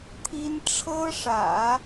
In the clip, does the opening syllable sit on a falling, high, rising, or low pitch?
high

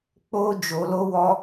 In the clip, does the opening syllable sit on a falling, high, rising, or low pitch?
high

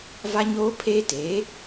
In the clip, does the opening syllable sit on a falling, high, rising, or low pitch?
high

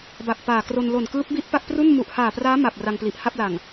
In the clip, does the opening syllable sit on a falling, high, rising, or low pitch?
low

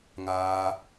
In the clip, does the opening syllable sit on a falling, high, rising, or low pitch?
high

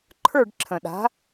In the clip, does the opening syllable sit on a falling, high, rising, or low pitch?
falling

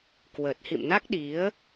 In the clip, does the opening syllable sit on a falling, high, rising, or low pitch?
low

